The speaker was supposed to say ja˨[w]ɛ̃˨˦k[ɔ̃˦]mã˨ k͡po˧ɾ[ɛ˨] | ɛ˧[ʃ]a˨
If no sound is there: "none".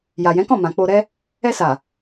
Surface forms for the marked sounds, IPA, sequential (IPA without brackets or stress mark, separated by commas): j, ɔ̃˦˨, ɛ˦, s